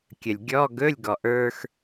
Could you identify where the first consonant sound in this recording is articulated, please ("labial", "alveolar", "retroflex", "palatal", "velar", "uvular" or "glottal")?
velar